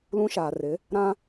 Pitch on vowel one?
high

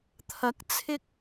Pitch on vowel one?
rising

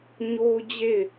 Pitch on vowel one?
high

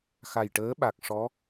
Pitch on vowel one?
low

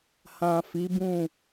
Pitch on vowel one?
low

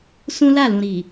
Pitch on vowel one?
high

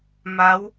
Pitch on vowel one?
rising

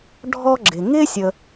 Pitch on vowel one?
high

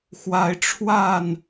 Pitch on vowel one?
rising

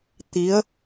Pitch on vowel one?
rising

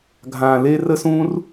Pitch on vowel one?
low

